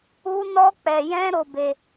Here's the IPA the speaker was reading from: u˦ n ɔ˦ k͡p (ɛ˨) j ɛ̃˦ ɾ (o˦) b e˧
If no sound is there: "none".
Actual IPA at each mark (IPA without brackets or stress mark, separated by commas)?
ɛ˧, o˧